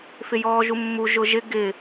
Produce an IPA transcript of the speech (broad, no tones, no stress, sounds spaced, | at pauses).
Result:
f ɪ j ɔː ʒ u mː u ʒ ʊ ʒ ɪ ɡ ɪ